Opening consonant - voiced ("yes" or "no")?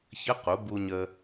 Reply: no